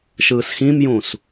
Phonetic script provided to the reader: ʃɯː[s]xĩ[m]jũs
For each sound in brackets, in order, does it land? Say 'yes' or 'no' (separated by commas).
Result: yes, yes